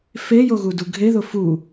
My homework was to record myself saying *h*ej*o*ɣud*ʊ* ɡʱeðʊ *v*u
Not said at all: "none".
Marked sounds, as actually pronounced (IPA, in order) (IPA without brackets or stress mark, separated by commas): f, o, u, f